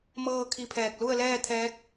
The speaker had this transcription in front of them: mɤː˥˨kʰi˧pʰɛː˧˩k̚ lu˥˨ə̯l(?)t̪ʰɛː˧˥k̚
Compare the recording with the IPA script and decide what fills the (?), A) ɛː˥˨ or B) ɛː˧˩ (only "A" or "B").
A